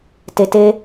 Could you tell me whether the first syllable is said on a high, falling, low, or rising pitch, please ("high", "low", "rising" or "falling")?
low